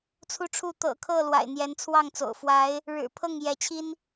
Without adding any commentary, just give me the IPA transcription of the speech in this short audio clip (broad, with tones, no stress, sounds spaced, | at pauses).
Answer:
t͡sʰ u˦ ʈ͡ʂʰ u˥˨ t̪ ɤ̰˨˩ kʰ ɤ˥˨ l w a̰˨˩ ɪ̯ n̪ j ɛ˨˦ n t͡sʰ w ɑ˥˨ ŋ t͡s o̰˨˩ ʊ̯ f w a˨˦ ɪ̯ | ɻ ɻ̩˨˩ pʰ ɤ˥˨ ŋ j ɛ˨˦ t͡ɕʰ i˦ n